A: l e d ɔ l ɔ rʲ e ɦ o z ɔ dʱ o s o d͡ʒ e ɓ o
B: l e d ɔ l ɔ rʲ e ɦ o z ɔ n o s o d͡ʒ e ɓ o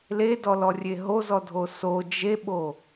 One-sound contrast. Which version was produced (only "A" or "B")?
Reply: A